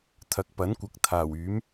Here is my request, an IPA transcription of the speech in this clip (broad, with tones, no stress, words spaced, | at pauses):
t̪ʰɐ˨k̚pɐ˨˥nkʷɐ˨k̚ t̪ʰaː˨˩wyː˨˥m